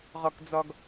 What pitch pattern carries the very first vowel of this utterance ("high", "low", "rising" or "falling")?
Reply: low